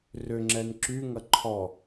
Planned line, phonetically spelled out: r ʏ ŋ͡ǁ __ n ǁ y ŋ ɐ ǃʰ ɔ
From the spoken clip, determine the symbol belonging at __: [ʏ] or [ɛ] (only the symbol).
ɛ